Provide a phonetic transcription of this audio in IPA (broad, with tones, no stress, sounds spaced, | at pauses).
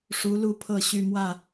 ʂ u˨˦ l u˥˨ pʰ ɤ˥˨ ɕ y˥˨ m w ä˥˨